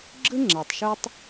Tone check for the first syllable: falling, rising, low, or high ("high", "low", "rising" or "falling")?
high